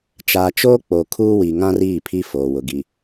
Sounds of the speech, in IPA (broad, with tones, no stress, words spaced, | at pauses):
t͡ʃaː˨t͡ʃoː˦ k͡po˨kʰuː˦wi˨ŋã˦r iː˦˨pʰi˦ foː˨wʊ˨ ɡi˨